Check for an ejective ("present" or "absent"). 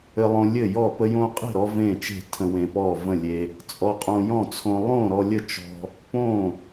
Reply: present